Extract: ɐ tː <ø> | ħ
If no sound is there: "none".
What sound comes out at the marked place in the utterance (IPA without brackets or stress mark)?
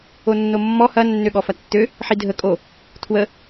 ø